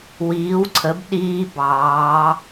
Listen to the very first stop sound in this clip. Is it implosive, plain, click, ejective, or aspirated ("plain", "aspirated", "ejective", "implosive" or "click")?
click